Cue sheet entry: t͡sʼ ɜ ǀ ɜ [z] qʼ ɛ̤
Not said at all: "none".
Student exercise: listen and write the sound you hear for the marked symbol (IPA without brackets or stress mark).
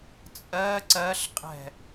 ɬ